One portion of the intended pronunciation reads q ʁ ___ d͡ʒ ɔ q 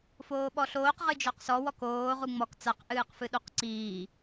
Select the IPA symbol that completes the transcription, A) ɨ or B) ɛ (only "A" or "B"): A